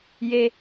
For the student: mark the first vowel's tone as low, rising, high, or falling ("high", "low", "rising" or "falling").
high